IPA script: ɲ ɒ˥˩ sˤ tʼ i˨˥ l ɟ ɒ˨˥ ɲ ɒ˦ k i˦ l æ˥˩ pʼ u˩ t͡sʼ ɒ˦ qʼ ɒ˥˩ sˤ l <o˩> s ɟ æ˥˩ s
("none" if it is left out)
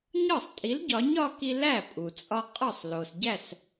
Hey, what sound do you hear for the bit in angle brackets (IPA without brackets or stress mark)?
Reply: o˩